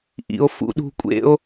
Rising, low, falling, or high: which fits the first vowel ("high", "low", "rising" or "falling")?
low